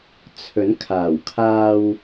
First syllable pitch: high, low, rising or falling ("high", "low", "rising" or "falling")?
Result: rising